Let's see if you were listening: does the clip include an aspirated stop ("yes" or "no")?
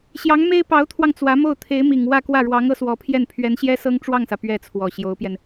yes